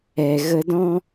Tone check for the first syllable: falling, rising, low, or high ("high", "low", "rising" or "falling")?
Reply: low